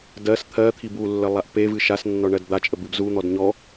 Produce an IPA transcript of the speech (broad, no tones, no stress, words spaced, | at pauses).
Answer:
dɜs t̪ʰɜt̪ʰib ulːə lˠaʔpevɨ ʃasnːɔ ɳɜdd̪at͡ʃʼəb ɨbzun̪ɔd ɲɔ